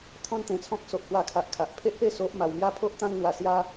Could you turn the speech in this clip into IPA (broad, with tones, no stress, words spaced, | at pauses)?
t̪ʰɔ̃˦nt̪ẽ˧t͡sʰɔ̃˦k̚ so˦ʔhwa˥˧kʰa˦ʔ kʰa˨ʔpʰe˦ʔpe˥˧ so˦ʔma˧w mja˦pʰo˦ʔt̪ã˦ŋn̪wa˧ sja˦